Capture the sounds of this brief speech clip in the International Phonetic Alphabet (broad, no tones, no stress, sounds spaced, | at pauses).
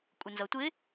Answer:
kʷʼ ɪ n z ʌ tʷ ɪ